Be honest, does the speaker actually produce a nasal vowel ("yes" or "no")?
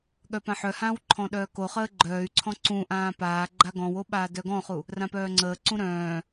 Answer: yes